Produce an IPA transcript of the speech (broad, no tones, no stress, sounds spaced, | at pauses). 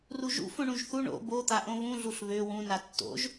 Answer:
r u ʒ ṵ f õ ɳ ũ ʒ θ u ɳ o̰ b o t̪ a ʔ õ β ũ ɮ u ɬ β ø w ũ n a tː o̰ ʒ